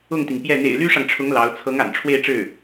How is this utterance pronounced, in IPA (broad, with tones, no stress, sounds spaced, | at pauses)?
ʊ˥˩ ŋ t̪ i˩ ŋ p j ɛ˥˩ n̪ ḛ˨˩ ɪ̯ l y˥ ʂ ɑ˨ ŋ ʈ͡ʂʰ ʊ˧˥ ŋ l ɑ˧˥ ʊ̯ t͡sʰ ɤ˧˥ ŋ a̰˨˩ n ʈ͡ʂʰ w e˥˧ ɪ̯ ʈ͡ʂ ɻ̩˥˩